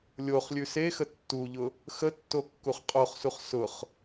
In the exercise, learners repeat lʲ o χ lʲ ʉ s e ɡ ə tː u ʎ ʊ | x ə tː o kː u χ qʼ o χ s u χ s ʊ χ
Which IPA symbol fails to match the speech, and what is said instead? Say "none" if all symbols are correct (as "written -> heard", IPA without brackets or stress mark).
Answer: ɡ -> x